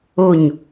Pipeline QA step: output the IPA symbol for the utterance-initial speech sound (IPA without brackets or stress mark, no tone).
o